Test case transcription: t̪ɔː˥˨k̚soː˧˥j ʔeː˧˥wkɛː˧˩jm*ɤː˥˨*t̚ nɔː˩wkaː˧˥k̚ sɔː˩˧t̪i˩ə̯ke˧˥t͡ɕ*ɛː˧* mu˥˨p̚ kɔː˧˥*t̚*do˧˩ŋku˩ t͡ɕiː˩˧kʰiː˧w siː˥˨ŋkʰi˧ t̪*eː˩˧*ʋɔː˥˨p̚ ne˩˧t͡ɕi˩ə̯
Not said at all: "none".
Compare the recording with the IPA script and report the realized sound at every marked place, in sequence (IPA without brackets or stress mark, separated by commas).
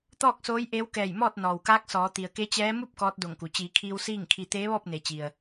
ɔː˥˨, ɛː˧˥, t̚, eː˧˥